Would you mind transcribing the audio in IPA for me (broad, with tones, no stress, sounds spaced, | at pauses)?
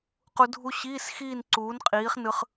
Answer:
q u˧ dʱ u˧ ɕ iː˧˥˧ s x iː˥˧ n ǀ uː˨˥ n qʼ iː˨˥ χ n ɯ˧ χ